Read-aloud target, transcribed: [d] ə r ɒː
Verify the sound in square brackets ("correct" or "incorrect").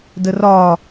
correct